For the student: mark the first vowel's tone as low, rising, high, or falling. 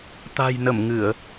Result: low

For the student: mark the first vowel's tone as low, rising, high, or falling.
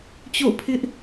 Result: falling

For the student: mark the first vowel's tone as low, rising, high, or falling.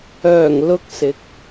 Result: low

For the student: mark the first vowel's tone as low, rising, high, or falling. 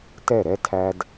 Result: falling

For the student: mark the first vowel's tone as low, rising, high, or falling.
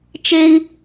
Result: high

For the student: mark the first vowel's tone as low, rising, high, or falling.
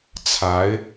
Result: rising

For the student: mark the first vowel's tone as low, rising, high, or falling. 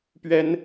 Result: high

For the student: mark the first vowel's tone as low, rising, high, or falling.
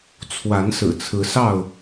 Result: rising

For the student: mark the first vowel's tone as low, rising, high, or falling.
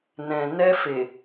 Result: low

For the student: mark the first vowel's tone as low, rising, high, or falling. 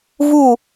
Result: falling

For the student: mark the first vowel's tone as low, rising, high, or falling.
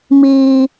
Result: high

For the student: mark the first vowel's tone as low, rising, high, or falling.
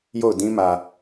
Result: falling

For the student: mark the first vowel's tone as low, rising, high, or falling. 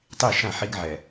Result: falling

